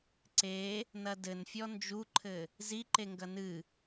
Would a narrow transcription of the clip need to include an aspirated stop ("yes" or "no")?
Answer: yes